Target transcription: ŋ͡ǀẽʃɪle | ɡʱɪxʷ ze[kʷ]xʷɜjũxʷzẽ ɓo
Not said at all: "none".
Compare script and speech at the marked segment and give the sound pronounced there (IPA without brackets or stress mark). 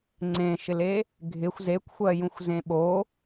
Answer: kʷ